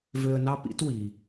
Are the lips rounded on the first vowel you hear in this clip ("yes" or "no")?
yes